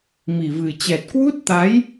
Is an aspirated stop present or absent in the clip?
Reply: absent